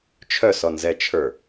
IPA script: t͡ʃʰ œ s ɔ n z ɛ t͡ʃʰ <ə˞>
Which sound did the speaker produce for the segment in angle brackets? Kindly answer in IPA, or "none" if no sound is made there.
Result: ə˞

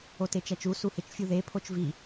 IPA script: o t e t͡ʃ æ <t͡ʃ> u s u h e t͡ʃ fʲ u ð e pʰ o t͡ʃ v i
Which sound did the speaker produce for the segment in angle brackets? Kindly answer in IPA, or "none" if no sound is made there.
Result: t͡ʃ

